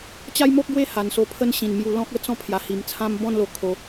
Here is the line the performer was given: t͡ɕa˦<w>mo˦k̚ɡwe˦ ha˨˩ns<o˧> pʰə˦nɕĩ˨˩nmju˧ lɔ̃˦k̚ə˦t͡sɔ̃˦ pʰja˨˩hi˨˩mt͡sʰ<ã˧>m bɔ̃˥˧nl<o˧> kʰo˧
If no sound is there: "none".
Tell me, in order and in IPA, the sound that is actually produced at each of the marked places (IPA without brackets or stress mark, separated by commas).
j, o˧, ã˦, o˧